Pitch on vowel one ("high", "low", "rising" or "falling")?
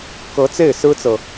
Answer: rising